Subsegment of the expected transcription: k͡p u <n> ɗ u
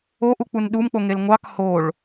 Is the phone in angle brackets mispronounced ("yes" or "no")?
no